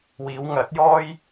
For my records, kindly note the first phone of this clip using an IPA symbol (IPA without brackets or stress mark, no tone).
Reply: w